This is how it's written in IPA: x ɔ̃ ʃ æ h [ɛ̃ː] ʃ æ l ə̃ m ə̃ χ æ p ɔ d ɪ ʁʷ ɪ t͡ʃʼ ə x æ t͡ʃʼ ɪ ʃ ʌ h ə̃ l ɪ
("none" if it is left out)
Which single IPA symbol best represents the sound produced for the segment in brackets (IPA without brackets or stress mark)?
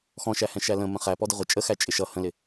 ɛ̃